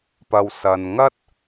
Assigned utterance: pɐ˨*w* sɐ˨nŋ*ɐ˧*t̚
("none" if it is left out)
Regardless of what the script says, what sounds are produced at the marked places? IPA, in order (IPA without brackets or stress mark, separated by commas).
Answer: w, ɐ˥